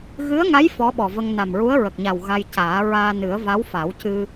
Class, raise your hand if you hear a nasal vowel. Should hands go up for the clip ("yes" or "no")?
no